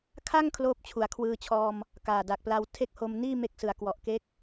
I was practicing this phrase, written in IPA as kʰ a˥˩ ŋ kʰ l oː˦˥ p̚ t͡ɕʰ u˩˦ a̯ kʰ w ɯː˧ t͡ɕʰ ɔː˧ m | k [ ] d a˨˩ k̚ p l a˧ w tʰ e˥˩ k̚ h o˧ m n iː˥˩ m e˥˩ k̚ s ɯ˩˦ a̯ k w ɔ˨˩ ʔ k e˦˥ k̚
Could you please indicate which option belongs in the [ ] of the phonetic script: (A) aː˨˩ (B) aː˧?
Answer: A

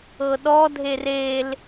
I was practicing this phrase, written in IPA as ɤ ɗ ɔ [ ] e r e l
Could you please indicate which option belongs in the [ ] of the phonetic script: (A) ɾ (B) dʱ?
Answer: B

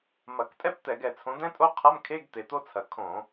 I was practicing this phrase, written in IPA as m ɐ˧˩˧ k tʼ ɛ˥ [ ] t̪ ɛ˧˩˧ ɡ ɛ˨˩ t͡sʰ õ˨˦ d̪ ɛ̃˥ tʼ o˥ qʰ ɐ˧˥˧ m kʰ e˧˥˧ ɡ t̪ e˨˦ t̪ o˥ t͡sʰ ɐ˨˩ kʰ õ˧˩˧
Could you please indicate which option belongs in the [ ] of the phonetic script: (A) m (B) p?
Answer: B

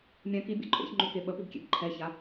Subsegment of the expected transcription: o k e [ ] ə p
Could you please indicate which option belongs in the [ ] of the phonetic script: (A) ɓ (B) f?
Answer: A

